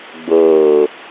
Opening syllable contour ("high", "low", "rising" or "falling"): low